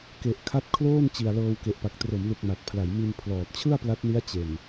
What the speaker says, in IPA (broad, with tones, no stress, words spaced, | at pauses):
ke˨˩ʔkʰa˦˥t̚kʰloː˥˩n t͡ɕi˨˩a̯lɤː˧wke˨˩ʔpa˨˩k̚ tro˩˦mlu˨˩k̚ ma˨˩t̚pʰla˩˦jmi˧n pʰlɔː˨˩t̚t͡ɕʰɯ˥˩a̯pla˦˥t̚ni˦˥a̯ t͡ɕe˨˩n